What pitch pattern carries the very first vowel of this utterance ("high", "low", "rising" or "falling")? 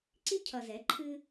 high